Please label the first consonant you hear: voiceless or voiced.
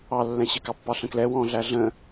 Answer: voiced